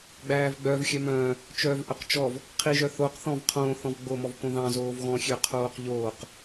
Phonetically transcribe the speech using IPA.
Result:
ɡ͡b æː v ɡ͡b œ v xʲ œ m œ̃ː | t͡ʃ œː v ʔ œ q t͡ʃ ɔ v | qʰ i ʒ œ θ o q θ ɔ̃ v qʰ õː θ ɔ̃ v ɡ͡b o m ɔ v k õ ð ɑ̃ z oː v ɣ ɔ̃ xʲ ø qʰ oː q ʎ oː q

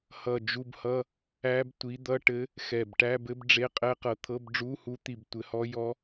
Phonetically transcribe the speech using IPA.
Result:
h ʌ˧˩ d͡ʒ u˧˥˧ b h ʌ˧˥˧ | æ˧˥ b tʷ i˩˥ d̪ ʌ˧˥˧ ʈ ɘ˧˥ | x ɛ˧˩ b ʈ æ˧˥˧ b ɘ˧˥ b ɖ͡ʐ e˧˥˧ qʼ ɛ˧˥ q ɤ˩˥ t̪ʰ ɤ˧˥˧ b ɖ͡ʐ u˧˥˧ h u˧˥ t̪ i˧˩ b tʷ ɘ˩˥ h ɔ˧˥ j ɔ˧˥

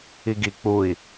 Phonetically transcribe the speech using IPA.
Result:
i ɡ i k͡p u i̯

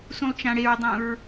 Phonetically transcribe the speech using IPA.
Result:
s ũ lˠ t͡ʃ ã ɽ e ɹ dˤ ũ ɹ

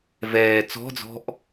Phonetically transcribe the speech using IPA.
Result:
v ɛː t͡s ɔ̤ d͡z ɔ̤ ʔ

